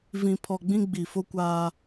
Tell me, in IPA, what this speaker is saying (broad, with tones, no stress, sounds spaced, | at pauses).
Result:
v ĩ˨ pʰ ɔ˨ ɡ͡b ĩ˦ ɡ͡b i˨ f o˦ kʷ aː˦